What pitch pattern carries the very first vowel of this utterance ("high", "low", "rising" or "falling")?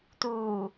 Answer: low